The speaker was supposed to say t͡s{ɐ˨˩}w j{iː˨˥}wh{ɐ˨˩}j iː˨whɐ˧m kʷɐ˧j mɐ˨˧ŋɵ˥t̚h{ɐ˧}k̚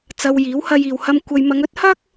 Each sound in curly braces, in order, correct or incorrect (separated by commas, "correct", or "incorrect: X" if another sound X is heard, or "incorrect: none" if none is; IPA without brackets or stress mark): incorrect: ɐ˧, correct, incorrect: ɐ˧, incorrect: ɐ˥